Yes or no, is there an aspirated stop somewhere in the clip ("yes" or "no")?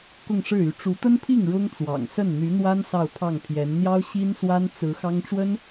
yes